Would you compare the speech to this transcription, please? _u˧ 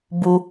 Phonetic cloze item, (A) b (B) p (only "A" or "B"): A